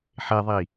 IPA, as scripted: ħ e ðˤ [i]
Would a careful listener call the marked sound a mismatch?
no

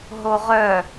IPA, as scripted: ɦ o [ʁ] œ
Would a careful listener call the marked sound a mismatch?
no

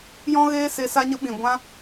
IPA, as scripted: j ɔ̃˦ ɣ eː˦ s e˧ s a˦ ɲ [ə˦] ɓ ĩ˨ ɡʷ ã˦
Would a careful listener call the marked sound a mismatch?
no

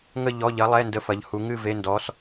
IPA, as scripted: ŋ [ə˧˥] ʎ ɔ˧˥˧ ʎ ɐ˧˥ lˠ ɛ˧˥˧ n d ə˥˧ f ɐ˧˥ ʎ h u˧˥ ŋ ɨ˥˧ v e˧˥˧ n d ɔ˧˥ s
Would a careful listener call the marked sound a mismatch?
yes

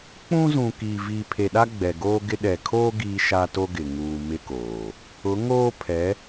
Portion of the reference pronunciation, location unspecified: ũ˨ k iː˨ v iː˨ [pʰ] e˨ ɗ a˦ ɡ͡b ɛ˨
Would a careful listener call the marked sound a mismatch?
no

